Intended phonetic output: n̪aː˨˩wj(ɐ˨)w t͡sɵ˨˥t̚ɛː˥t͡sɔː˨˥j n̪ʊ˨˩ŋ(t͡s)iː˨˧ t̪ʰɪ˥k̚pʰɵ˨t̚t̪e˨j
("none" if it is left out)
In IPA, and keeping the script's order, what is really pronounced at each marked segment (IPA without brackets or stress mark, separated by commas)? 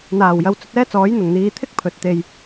ɐ˨, n̪